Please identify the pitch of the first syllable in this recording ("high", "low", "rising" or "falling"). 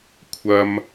high